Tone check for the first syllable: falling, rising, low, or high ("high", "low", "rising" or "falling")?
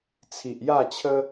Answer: low